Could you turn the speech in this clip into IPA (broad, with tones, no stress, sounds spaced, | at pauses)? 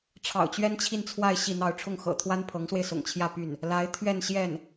ʈ͡ʂʰ ɑ̰˨˩ ʊ̯ t͡ɕ ɥ ɛ˥ n t͡ɕʰ i˥˧ n t͡sʰ w a˥˧ ɪ̯ ɕ i˥˧ n̪ ɑ˥˧ ʊ̯ ʈ͡ʂʰ ʊ˥˩ ŋ x ɤ̰˨˩ t̪ʰ w a˥ n pʰ ɤ˧˥ ŋ s w e˧ ɪ̯ s ʊ̰˨˩ ŋ t͡ɕʰ j ä˥˧ p y˥˩ n | l a˧˥ ɪ̯ t̪ʰ ɥ ɛ˥˧ n ɕ j ɛ˥˩ n